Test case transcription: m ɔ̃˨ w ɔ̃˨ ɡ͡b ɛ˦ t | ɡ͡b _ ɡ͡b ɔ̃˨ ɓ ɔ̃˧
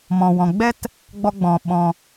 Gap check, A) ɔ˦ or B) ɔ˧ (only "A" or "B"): B